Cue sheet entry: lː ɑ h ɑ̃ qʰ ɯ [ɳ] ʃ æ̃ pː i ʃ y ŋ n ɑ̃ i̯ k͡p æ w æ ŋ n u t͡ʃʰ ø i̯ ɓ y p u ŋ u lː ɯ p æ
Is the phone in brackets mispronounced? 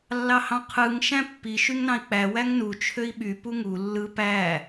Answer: yes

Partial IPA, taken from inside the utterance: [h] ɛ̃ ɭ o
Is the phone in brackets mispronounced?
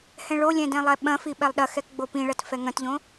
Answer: no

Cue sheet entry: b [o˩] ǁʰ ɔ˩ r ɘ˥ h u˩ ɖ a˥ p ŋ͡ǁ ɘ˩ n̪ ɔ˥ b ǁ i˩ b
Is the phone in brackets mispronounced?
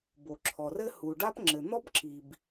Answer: no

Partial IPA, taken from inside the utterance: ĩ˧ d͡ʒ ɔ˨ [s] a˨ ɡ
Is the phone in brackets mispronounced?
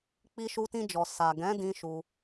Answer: no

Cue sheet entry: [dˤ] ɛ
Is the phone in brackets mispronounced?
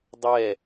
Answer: no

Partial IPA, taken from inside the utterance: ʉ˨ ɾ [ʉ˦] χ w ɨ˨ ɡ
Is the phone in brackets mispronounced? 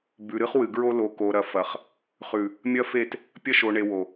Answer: yes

